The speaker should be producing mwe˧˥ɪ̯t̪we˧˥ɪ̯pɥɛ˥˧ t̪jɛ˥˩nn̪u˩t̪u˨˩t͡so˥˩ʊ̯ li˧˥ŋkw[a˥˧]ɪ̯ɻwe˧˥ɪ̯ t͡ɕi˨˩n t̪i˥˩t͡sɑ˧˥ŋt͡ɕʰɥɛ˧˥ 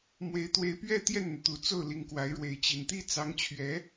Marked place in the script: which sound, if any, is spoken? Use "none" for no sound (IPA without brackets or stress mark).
a˧˥